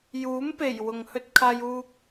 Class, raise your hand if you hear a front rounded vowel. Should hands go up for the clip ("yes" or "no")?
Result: no